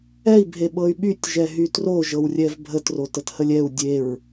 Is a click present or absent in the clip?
absent